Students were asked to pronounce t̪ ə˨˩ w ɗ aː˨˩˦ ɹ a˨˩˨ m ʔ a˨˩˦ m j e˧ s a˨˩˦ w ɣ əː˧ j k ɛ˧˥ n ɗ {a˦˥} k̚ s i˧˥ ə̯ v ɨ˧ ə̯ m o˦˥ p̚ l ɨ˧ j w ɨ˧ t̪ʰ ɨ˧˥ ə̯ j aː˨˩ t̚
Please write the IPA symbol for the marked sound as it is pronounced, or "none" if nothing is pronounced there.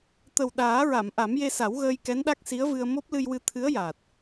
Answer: a˦˥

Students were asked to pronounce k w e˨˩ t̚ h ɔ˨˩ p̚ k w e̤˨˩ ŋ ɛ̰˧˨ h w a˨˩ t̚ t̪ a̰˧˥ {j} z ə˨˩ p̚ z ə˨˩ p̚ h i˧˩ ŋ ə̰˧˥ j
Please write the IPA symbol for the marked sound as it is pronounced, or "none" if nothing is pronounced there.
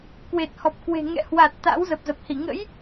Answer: w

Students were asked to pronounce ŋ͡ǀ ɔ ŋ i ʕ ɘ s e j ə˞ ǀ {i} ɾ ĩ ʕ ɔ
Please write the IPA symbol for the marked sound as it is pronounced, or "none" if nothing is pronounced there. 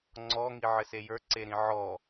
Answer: e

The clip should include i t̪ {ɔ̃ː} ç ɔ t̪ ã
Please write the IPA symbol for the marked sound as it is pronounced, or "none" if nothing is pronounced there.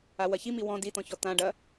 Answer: ɔ̃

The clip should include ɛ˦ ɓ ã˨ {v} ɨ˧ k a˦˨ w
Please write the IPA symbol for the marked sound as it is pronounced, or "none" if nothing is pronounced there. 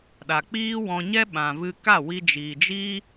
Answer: v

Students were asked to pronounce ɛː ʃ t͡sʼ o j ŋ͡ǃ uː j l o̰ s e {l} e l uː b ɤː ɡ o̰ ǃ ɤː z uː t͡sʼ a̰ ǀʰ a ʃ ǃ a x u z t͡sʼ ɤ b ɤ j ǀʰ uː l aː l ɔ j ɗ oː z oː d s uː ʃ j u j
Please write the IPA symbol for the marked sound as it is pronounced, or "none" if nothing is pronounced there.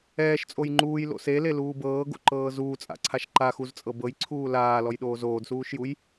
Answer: l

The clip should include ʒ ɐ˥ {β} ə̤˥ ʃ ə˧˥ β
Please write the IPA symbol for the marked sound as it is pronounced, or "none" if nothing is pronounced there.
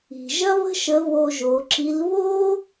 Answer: β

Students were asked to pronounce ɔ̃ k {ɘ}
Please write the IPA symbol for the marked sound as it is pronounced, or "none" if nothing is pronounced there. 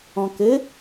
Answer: ɘ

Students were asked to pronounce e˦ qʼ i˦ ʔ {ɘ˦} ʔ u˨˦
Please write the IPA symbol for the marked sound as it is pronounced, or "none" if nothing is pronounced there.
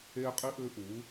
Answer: ɘ˦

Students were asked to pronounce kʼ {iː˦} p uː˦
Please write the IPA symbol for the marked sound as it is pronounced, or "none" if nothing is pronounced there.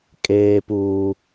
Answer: eː˦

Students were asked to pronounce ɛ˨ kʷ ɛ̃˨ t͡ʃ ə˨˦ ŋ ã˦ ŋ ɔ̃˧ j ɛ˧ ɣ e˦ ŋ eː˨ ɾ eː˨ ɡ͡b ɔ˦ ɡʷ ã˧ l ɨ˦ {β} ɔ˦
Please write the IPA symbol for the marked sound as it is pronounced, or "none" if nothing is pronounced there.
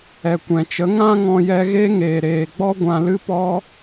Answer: p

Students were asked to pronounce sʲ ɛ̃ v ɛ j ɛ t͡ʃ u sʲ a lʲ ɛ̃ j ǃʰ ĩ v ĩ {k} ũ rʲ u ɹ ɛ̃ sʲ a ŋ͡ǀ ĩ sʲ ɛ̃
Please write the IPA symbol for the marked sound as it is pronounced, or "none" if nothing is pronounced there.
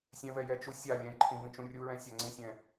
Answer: t͡ʃ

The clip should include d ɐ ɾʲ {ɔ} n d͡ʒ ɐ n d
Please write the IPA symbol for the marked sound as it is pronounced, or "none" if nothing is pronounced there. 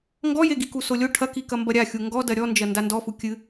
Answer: ɔ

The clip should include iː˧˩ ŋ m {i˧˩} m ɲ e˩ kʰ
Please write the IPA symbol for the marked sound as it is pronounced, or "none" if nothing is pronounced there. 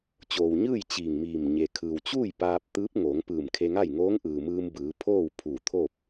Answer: iː˧˩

